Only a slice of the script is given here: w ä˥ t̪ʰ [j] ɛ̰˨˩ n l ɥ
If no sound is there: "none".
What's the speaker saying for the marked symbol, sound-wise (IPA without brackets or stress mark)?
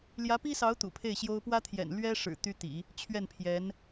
j